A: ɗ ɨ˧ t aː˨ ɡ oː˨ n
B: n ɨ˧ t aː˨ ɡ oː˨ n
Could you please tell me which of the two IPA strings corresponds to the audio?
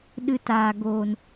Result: A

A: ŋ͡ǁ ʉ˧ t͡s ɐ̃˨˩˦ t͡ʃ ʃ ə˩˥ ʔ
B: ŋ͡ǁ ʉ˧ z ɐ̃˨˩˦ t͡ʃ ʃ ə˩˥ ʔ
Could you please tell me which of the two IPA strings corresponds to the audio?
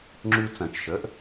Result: A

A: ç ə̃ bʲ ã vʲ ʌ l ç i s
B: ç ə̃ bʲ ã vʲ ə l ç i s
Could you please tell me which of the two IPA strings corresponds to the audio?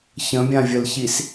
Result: B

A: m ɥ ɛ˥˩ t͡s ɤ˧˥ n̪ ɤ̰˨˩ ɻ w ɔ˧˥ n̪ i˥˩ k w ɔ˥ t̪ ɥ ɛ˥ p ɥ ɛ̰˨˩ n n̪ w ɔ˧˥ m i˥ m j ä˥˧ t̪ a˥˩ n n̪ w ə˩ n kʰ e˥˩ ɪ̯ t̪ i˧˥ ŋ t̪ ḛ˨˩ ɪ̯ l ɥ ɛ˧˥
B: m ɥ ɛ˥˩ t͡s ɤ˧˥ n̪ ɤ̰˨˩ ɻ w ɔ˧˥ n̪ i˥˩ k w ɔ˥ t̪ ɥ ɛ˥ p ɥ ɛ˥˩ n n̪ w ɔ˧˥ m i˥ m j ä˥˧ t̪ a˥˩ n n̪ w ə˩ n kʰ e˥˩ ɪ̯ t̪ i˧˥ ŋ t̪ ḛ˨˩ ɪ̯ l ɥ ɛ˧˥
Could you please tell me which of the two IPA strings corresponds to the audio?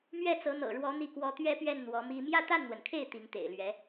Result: B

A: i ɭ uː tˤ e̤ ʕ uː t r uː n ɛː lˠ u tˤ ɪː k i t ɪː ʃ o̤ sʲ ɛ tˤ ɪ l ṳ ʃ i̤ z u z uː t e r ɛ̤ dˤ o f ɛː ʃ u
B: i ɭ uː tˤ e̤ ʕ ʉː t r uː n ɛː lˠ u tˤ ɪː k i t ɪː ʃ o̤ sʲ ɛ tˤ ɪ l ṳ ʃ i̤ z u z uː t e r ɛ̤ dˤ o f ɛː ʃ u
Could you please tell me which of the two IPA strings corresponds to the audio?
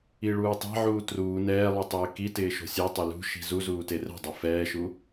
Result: A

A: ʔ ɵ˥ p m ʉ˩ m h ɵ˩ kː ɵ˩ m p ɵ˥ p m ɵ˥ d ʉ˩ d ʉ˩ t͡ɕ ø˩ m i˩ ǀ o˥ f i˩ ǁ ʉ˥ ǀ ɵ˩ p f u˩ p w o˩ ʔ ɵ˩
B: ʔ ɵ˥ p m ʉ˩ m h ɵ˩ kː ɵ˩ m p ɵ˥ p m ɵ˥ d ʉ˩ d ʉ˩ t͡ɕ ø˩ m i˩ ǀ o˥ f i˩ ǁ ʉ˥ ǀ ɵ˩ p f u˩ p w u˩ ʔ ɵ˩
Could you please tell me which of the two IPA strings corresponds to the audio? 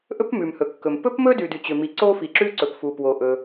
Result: A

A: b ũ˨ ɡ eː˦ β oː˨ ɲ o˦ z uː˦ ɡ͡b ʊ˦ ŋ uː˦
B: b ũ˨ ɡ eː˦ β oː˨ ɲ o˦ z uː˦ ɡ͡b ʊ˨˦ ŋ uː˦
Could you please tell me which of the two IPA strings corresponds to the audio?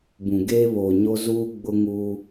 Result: A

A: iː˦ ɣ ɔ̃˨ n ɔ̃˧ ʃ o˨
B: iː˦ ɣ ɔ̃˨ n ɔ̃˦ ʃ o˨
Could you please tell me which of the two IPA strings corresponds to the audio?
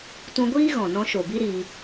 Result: A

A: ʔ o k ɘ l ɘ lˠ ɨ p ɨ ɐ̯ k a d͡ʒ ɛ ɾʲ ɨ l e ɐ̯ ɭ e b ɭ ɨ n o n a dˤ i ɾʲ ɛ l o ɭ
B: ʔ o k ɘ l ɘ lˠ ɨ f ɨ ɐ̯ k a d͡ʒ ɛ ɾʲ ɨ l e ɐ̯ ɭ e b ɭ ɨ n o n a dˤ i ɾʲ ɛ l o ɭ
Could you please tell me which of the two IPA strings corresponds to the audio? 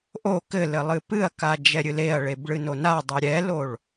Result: A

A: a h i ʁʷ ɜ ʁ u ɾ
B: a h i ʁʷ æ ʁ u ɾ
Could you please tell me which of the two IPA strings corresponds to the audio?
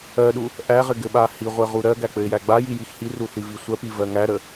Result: A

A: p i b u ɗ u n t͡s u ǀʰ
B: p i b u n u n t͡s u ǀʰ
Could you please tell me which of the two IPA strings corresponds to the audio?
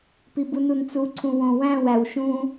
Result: B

